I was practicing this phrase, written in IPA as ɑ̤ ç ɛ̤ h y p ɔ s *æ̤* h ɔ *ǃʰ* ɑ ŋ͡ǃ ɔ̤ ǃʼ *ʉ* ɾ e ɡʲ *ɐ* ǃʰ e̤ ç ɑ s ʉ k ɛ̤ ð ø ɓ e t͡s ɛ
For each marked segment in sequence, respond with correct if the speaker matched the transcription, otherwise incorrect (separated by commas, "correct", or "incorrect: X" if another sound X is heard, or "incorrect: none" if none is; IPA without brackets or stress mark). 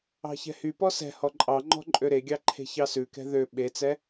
incorrect: ɛ̤, incorrect: ǃʼ, incorrect: ø, incorrect: ɑ